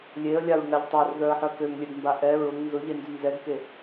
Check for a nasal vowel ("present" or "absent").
absent